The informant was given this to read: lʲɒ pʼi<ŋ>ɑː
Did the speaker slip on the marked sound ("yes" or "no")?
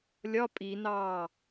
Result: yes